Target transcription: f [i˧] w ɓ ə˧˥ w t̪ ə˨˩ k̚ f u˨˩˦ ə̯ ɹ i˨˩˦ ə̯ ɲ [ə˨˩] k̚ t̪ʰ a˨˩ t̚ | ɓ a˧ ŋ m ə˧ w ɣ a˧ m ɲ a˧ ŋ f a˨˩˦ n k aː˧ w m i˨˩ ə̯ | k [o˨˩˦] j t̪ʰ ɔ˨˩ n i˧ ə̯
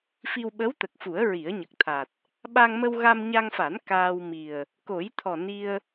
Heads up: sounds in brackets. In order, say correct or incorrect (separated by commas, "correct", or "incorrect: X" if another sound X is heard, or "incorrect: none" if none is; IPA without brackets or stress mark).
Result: correct, correct, correct